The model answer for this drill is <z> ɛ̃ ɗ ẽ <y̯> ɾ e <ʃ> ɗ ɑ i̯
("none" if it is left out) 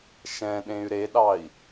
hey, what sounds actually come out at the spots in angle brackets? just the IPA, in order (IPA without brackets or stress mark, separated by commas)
ʃ, y̯, none